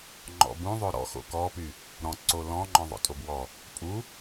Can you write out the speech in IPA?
ŋ͡ǃɔ̰bũ ðˤoɾɔ̰ xo̰kɔpy | ɾɔ̃ǀo lɔ̃ŋ͡ǃɔ̃ ðˤo̰tʼobwɔ | pʼu

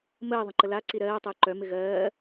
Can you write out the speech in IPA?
məː ðˤə̃ǃəla ǀiɾɜː tˤəːǃœ mɪɣɜː

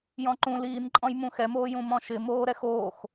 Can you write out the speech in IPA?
jɔ̃ǃũ liːnǃʼɔ̃j mũxɛmoː jũmɔ̃ʃɪ moːɾɛxoːx

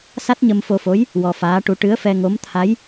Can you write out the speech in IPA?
sa˦˥t̚ɲə˧mfo˧fo˧˥j | wɔ˧faː˧˥ʈu˧˥ ʈɨ˧˥ə̯fɛ˧ŋo˧˥m t̪ʰa˧˥j

